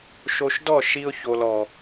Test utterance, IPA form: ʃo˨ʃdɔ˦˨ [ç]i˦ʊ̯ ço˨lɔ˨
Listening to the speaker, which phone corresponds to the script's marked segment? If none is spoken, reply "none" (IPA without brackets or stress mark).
ʃ